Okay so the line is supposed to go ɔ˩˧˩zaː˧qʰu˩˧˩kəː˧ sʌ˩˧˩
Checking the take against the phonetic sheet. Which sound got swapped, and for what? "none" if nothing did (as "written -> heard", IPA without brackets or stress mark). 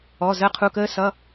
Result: aː˧ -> əː˧